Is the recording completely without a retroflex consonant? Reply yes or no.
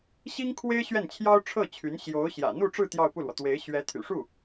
no